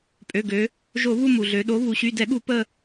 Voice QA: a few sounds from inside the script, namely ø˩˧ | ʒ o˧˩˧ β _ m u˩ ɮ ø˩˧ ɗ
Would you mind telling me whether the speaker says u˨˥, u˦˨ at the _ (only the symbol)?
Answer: u˦˨